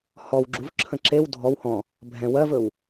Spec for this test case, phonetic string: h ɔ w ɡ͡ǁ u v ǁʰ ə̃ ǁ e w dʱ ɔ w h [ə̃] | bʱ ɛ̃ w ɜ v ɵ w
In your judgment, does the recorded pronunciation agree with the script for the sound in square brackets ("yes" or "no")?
no